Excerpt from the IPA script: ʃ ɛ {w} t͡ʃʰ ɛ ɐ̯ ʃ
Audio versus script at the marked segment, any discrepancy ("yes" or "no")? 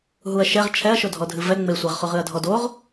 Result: yes